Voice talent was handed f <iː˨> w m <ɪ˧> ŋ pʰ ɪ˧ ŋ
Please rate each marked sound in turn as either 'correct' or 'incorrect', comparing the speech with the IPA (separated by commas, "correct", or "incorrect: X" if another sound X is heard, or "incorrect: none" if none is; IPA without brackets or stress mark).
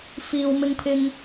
correct, correct